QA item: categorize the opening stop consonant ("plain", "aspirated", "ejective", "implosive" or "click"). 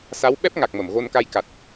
implosive